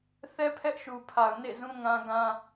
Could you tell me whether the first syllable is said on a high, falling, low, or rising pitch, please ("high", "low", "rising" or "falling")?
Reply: high